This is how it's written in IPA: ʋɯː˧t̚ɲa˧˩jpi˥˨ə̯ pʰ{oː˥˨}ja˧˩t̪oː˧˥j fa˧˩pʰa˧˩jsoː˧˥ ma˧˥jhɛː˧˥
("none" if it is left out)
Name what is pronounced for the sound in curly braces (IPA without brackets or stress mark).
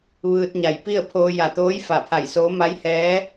oː˧